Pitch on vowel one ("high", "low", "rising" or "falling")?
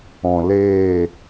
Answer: low